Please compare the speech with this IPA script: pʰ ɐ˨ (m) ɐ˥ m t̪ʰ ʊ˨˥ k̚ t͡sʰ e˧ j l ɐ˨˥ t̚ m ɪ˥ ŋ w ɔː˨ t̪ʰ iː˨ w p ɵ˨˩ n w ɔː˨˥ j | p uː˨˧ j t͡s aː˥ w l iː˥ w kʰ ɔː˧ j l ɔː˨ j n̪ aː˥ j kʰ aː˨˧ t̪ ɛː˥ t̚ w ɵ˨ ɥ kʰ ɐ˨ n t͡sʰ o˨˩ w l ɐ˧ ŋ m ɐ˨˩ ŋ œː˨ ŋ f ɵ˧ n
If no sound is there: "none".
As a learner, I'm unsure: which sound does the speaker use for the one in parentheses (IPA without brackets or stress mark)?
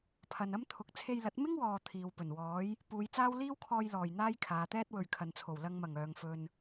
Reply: n